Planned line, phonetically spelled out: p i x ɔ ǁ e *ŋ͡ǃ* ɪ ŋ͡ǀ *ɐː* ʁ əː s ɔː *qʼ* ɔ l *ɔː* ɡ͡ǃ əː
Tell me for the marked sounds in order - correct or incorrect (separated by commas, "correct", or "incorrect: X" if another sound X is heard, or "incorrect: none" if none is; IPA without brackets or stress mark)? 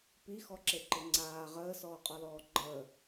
incorrect: ǃ, incorrect: aː, correct, correct